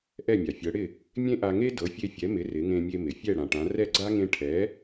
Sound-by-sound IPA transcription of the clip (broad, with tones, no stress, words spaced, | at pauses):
ʔɛ˥˩mʲa˩fʲɤ˩˥ɽɪ˥˩ | mʲẽ˥ʔa˧ŋe˥ dɤ˩˥fʲe˧fʲɛ˩˥mɪ˩˥ rɪ˩˥ŋẽ˧mʲe˧ mɪ˩fʲɛ˥˩ ɽã˩ʈã˩˥ rɛ˥˩ɡ͡ǀa˥ ŋẽ˧ʈʰɛ˩˥